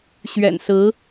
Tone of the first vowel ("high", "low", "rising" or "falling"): low